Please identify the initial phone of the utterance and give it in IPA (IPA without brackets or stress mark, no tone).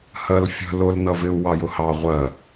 h